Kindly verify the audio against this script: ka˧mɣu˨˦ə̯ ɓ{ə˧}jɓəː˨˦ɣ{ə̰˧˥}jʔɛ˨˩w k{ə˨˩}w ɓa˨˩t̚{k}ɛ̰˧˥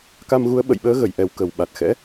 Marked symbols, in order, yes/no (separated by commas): no, no, yes, no